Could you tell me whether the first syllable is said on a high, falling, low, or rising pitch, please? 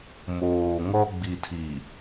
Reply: low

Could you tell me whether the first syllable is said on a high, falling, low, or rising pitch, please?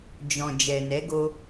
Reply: low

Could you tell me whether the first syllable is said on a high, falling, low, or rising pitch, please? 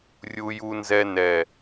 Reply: high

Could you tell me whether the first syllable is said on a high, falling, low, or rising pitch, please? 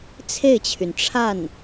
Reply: falling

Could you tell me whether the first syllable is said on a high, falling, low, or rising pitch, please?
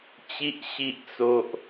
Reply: high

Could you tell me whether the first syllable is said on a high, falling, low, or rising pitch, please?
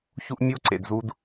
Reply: high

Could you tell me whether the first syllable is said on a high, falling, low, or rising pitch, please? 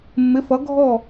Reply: rising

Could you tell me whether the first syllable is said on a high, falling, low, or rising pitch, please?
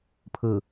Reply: low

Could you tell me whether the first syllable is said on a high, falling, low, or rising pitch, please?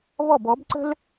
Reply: falling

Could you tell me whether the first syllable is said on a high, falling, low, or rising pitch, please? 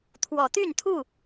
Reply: rising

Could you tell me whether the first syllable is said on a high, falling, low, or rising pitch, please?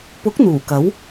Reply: rising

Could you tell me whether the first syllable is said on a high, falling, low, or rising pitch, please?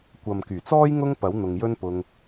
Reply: low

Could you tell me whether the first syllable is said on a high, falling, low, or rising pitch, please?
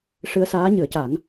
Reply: rising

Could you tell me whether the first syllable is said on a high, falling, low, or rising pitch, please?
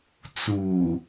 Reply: low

